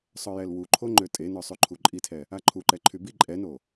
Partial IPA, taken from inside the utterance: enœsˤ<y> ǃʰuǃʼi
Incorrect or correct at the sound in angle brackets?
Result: correct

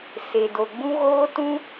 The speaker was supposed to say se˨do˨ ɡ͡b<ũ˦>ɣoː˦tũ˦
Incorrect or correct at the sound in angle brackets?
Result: correct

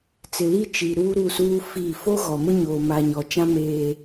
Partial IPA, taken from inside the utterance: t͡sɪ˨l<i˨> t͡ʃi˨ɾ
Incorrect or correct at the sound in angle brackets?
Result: incorrect: i˦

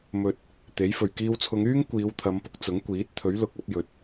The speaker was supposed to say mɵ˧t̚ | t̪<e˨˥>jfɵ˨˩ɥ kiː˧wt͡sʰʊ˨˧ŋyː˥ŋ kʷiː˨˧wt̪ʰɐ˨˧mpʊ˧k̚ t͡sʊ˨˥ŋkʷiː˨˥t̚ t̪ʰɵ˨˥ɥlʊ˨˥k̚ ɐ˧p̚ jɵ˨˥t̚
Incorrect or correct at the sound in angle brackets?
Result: correct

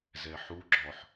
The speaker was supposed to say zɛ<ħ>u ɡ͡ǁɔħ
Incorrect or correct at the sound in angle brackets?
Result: correct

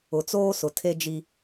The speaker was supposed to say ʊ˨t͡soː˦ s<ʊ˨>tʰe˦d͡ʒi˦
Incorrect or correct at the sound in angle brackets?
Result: correct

